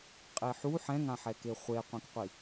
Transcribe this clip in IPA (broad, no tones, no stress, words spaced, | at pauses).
qʼeħu ħɛ̃ŋãħɛke χʷeqʷẽkqʷi